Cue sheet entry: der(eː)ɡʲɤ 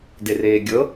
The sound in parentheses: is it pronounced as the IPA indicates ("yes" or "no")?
yes